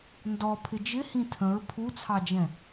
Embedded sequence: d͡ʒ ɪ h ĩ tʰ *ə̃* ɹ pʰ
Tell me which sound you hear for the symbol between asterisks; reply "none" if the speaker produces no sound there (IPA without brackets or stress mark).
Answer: ə̃